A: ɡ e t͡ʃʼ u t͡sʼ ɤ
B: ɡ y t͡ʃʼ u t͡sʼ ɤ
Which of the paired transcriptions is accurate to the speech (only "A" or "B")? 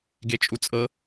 A